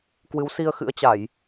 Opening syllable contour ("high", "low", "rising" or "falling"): rising